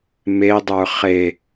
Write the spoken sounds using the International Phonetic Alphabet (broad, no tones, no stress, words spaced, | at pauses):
medˤə˞ χe